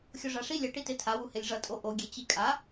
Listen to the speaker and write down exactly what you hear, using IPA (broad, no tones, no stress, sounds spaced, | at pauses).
xʲ o ʐ a ʂ i lʲ ʌ ʈ i t e tʰ a w u h e lʲ ʐ ʌ tʼ o ʔ o ɡʲ e t͡ɕ i kʼ a